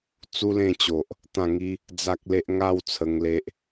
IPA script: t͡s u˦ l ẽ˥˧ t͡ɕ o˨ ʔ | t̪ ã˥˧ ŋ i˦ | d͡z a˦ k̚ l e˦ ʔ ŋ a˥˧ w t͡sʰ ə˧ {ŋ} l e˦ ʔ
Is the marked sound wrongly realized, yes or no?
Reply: no